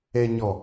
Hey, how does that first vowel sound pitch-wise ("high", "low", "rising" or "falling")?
low